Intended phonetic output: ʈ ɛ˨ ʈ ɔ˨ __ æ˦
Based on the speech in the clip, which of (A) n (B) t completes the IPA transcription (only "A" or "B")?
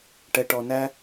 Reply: A